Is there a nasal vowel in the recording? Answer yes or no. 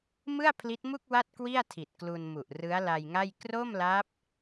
no